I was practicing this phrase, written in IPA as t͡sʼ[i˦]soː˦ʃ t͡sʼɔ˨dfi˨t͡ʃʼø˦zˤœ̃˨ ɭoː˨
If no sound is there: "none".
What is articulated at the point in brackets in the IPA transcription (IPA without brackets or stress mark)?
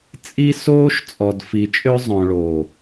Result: i˦